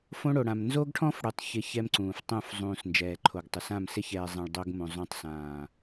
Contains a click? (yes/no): yes